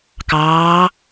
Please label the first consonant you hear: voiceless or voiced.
voiceless